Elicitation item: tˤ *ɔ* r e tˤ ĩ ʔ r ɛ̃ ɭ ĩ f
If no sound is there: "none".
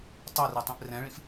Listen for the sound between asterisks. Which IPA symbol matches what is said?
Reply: ɤ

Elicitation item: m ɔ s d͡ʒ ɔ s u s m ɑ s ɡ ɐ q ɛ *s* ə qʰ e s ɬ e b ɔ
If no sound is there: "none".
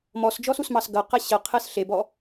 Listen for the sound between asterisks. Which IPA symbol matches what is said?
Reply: ɕ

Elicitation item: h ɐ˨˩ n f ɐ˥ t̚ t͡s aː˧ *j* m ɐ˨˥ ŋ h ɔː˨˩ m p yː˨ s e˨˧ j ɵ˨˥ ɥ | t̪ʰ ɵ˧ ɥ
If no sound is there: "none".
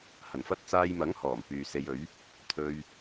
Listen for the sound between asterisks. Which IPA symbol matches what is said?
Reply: j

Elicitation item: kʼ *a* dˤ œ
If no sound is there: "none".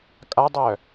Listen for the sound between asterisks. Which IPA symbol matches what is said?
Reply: a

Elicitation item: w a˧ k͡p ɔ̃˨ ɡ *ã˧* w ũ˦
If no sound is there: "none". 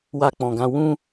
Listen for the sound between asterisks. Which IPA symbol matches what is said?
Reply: ã˧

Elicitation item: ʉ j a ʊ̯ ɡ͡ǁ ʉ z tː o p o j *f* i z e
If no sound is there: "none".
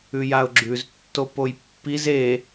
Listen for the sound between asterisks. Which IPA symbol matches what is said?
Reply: pː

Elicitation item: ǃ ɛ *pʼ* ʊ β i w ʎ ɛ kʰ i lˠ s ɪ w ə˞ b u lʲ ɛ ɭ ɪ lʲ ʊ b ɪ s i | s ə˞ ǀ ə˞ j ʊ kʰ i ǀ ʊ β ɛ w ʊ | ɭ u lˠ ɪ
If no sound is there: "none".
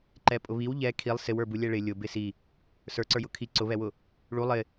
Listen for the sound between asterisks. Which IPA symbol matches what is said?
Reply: pʼ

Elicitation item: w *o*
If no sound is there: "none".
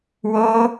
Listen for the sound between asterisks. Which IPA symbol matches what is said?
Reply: o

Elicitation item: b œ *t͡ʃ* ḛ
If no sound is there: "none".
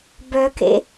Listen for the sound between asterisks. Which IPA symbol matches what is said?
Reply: k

